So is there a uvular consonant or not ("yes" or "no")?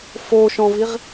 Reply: yes